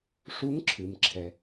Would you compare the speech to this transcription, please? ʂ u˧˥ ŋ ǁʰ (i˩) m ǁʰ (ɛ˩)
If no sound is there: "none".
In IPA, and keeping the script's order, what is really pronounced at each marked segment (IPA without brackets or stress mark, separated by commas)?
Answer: ɨ˩, ɛ˩